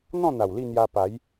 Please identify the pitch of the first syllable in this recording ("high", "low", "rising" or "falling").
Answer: falling